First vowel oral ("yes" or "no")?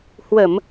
yes